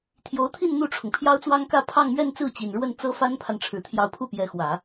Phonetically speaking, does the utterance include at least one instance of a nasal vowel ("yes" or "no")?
no